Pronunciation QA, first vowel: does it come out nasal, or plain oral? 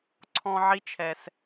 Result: nasal